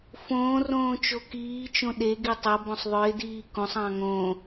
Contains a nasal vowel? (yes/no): yes